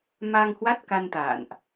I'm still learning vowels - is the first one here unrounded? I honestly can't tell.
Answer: yes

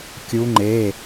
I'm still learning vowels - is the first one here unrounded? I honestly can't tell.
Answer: no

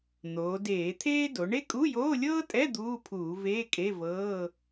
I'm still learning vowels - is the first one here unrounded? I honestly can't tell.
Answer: no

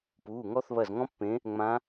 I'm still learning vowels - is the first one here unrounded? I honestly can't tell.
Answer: no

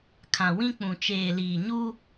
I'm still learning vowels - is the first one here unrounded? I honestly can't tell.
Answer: yes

